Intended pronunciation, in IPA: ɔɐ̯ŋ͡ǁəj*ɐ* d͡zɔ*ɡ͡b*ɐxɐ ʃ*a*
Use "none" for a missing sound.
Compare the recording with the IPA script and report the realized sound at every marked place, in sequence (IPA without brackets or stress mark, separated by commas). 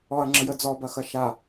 ə, b, a